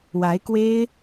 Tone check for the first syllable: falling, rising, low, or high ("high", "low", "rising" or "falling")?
rising